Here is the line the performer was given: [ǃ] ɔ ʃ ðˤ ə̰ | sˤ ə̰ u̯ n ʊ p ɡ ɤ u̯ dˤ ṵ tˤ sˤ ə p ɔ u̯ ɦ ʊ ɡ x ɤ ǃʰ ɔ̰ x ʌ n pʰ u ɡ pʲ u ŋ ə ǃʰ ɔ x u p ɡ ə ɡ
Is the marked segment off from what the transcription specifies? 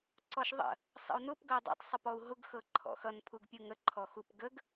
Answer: yes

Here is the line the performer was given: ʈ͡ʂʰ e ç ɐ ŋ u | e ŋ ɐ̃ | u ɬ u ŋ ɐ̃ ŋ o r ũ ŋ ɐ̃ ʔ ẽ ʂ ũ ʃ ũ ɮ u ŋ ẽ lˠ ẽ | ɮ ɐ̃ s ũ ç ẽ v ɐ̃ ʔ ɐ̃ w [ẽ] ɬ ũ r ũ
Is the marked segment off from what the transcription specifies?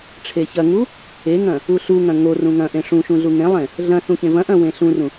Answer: no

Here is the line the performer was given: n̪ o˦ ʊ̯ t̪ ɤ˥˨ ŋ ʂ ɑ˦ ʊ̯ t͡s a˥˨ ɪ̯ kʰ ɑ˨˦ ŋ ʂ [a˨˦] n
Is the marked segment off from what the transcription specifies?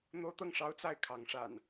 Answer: yes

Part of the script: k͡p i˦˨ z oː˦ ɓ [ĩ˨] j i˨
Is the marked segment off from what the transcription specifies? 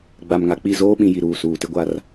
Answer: no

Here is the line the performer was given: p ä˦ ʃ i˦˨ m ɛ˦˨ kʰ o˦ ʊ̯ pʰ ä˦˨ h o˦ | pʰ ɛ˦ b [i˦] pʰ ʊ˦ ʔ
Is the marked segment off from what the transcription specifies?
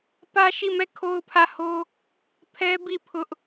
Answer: yes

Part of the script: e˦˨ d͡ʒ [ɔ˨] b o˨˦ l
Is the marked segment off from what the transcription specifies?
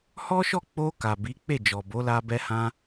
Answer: no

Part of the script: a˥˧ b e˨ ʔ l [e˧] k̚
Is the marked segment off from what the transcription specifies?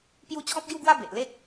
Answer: yes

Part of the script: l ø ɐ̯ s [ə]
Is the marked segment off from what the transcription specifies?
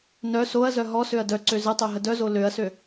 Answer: yes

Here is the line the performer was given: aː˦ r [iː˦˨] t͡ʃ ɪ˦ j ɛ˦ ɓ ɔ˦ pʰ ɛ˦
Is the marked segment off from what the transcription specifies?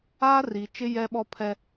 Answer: yes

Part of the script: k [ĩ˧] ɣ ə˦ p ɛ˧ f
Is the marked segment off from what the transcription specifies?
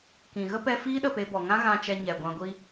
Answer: yes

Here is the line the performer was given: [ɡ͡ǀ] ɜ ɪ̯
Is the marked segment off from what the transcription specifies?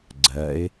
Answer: no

